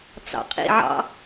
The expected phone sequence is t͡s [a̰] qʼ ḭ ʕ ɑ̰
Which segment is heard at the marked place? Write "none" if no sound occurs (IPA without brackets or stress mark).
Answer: ɑ̰